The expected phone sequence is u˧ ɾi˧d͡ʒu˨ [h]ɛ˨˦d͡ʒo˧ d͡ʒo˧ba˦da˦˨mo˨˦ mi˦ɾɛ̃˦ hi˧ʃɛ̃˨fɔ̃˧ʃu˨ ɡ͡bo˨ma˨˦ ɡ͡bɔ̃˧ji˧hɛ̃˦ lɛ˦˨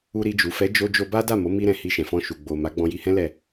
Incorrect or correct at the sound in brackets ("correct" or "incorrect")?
incorrect